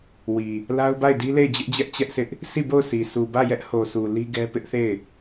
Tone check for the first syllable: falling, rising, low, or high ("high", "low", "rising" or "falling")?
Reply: low